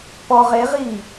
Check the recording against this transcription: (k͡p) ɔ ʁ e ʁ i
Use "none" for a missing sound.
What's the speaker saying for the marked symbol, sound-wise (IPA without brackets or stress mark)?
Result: p